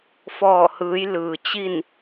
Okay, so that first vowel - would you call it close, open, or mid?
mid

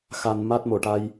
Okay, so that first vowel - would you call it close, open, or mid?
open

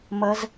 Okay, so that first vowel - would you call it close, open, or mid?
mid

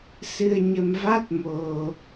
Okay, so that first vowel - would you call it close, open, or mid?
close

